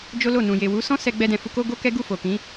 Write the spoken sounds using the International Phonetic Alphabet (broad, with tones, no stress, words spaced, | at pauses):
d͡ʒo˦lo˦˨nũ˨ je˨wu˨˦sɔ̃˦sɛ˧ ɡ͡bɛ˧dɛ̃˨fu˧ ko˦ɡo˦kɛ˦ ɡu˦˨ fo˨kĩ˨˦